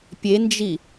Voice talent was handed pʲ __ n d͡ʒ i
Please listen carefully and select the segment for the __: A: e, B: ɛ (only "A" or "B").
A